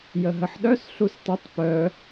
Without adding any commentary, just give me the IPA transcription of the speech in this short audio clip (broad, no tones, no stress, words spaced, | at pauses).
jəɦəħɗœs ɬustˤətˤ pœ